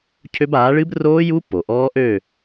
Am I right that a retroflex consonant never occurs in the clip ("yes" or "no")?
no